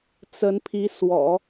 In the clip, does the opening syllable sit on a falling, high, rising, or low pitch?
rising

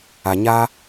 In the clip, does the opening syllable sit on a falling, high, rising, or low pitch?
low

